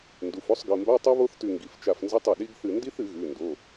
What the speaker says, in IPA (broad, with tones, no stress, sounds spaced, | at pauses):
n d u˩˧˩ f o˧˥˧ sˤ ɡ ɨ˩˧˩ m b a˧˥˧ tˤ u˦˥ β o˦˥ θ t ʉ˧˩ ŋ ɡ i˩˧˩ f t͡ʃ a˧˩ f n z ɨ˧˥˧ tˤ ɐ˩˧˩ ɗ i˦˥ ɡ θ ɨ˧˩ n d i˦˥ θ ɨ˨˩˦ ɣ ʉ˩˧˩ n d o˩˧˩